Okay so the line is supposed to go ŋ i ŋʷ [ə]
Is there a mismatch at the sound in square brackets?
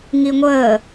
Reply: yes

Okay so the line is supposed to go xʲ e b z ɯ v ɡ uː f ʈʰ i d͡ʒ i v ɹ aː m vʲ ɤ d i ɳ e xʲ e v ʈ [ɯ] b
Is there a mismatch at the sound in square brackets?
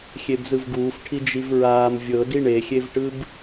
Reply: no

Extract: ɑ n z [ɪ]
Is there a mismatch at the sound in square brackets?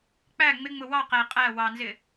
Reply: no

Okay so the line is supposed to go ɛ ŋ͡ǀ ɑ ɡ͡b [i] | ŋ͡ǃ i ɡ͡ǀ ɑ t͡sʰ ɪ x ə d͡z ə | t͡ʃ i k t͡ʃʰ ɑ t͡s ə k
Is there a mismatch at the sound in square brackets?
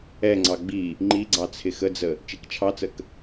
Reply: no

